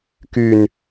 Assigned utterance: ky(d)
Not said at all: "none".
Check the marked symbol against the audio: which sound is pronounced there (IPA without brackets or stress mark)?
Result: n